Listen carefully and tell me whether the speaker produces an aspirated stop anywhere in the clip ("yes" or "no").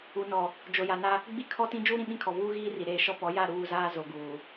yes